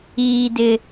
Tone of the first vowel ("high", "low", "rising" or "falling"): high